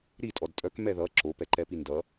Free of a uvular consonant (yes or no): yes